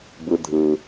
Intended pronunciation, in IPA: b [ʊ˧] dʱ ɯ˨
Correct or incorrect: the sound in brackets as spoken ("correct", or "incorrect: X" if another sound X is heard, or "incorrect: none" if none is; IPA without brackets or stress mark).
incorrect: ɯ˧